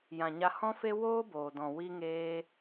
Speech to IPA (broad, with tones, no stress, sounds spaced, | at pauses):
j ã˨ ɲ a˧ h ɔ̃˦ f e˦ w oː˦ b oː˨ d ɔ̃˨ w i˧ ŋ eː˧